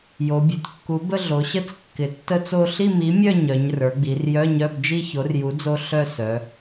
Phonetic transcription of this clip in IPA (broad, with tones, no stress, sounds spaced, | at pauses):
j o˩˧ bʲ ø˩˧ t kː u˨˥ b ə˥˧ ɮ o˩˧ ɕ ə˥˧ t͡s kː ɪ˩˧ tː ə˥˧ t͡s o˥˧ ɬ i˥˧ m i˨˥ mʲ œ˥˧ ɲ œ˩˧ ɲ r ə˞˩˧ ɡ͡b i˩˧ r j œ˧˥˧ ɲ œ˧˥˧ b d͡ʒ i˥˧ ç o˨˥ r j u˨˥ d͡z o˥˧ ɬ œ˥˧ s œ˩˧